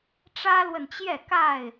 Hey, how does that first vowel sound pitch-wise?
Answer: high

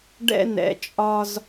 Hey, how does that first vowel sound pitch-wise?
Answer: high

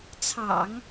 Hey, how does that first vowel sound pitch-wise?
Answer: low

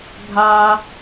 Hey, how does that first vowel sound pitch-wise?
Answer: high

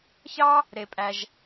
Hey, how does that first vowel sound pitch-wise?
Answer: high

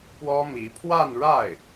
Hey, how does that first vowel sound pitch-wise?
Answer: high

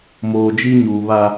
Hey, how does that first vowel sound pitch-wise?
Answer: low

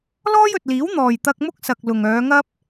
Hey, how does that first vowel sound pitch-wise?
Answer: high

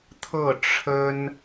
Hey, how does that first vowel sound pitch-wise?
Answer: falling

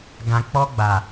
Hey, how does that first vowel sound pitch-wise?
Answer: low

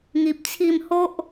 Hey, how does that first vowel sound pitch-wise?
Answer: low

